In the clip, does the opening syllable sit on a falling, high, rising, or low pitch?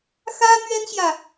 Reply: high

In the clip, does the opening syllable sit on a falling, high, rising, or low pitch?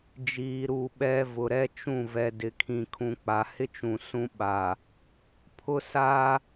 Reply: low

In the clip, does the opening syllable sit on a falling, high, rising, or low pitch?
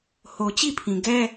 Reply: low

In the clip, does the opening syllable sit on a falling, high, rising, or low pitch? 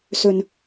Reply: low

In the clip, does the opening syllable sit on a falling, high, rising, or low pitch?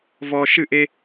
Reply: low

